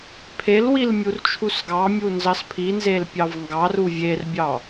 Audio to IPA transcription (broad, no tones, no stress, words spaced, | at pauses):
pʰelwil mʲurt͡ʃʰusɡɑmʲu nzɑspʰinzel pʲɑvŋɡɑru vʲerbʲɑ